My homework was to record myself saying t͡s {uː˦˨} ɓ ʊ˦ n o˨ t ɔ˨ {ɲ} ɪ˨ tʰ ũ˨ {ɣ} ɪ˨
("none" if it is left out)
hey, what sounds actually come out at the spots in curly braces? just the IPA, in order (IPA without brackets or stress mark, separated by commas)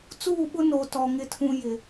uː˦˨, ŋ, j